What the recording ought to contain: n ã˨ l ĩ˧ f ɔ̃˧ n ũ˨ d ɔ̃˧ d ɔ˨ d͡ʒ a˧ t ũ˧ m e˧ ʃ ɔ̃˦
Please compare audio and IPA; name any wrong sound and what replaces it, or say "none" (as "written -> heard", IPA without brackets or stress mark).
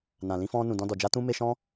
none